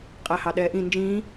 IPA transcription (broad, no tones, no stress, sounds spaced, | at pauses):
qʼ æ h ɑ ɗ ɛː ʔ ĩ n d͡ʒ ĩː